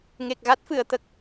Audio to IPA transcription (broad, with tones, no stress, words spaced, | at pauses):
ŋe˨˩k̚ɣa˦˥t̚fɨ˨˩˨ə̯ t̪ə˨˩k̚